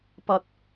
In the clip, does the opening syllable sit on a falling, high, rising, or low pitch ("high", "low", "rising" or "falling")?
low